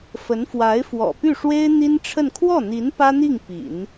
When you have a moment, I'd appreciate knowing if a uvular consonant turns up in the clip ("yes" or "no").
no